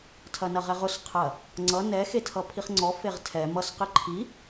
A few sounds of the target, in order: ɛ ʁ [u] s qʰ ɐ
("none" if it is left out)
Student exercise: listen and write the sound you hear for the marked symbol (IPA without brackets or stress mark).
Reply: ʊ